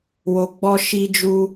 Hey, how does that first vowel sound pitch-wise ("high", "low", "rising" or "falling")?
low